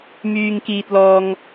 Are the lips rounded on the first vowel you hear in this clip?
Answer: yes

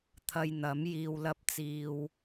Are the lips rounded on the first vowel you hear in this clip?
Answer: no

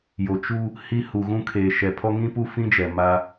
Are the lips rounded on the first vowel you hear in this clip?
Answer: yes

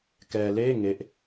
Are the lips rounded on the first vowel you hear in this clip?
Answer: no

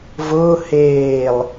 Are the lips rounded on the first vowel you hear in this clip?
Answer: yes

